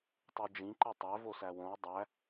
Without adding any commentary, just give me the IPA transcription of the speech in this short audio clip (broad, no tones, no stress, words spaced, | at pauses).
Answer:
tˤud͡ʒĩǃi tˤæv osæwõw dˤæ